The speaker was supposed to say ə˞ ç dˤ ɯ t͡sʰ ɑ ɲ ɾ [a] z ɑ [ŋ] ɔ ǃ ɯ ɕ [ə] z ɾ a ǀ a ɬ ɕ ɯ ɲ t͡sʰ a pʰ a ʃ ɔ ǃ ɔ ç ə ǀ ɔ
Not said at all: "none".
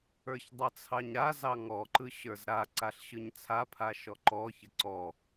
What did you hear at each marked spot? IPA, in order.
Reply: a, ŋ, ə˞

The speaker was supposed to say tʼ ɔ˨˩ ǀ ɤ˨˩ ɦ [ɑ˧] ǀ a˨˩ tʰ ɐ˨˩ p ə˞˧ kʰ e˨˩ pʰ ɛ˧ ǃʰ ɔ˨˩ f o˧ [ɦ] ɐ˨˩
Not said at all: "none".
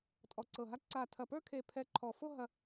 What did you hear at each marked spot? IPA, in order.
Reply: a˧, ɦ

